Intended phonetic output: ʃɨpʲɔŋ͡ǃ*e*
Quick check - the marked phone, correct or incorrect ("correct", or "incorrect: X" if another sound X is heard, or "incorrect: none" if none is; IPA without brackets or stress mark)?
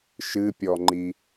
incorrect: i